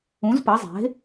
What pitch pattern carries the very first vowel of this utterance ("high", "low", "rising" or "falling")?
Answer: rising